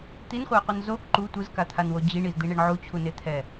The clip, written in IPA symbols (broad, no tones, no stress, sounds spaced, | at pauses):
t̪ i n χʷ a ɪ̯ qʷ ɯ n z o k ǃ u tʷ ɯ z k a t̪ʰ a n w o d͡ʑ i ɳ i z d̪ i ɳ e ɳ ʕ u t͡ɕʰ u n e t̪ʰ ɛ